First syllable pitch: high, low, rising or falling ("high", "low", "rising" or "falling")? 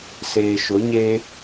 low